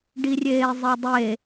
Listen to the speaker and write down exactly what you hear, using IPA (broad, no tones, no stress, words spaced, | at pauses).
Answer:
ɖirʲeːzˤidˤe